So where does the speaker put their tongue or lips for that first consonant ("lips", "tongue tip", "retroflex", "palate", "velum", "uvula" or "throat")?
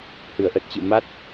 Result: throat